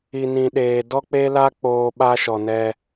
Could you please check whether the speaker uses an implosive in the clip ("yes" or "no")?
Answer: yes